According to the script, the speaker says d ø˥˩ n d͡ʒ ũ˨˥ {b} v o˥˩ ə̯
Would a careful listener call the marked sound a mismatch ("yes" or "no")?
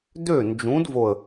yes